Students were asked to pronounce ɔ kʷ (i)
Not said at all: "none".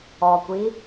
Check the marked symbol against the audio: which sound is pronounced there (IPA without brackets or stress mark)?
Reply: i